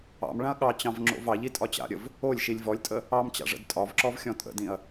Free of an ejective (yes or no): no